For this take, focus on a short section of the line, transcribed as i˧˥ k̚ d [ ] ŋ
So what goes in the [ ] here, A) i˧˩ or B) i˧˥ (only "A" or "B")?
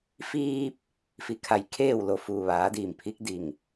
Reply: A